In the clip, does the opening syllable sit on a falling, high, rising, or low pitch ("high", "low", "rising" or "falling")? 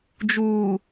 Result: low